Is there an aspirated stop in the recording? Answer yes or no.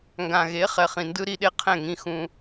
yes